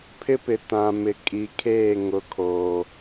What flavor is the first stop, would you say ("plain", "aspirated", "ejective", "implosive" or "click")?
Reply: aspirated